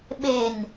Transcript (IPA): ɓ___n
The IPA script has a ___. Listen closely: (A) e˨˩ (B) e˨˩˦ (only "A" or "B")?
A